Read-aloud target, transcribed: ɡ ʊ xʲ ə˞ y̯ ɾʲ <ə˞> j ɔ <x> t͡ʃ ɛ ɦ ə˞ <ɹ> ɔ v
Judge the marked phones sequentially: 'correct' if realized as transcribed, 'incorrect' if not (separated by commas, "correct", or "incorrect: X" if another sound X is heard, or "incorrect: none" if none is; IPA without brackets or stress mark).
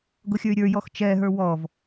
correct, correct, incorrect: w